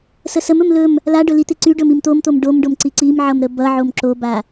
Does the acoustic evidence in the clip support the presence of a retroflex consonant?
yes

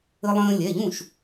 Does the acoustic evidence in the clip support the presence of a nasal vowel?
yes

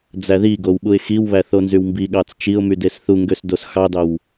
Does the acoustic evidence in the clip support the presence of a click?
no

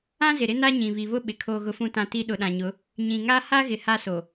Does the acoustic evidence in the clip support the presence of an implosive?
yes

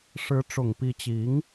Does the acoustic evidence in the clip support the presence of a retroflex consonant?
yes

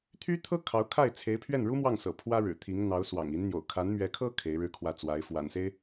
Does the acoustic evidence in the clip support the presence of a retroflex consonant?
yes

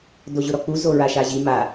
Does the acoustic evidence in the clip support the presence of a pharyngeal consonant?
no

